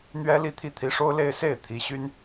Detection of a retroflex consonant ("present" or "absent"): present